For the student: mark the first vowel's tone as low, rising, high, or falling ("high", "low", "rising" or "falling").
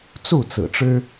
falling